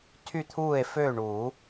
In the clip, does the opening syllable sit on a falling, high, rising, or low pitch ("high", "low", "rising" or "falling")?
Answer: falling